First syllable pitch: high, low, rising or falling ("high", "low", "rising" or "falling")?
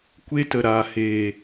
high